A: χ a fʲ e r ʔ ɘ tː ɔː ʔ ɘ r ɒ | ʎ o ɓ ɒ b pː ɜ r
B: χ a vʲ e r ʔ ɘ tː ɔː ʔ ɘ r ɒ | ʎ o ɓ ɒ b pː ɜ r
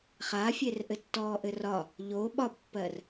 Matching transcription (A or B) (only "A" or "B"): A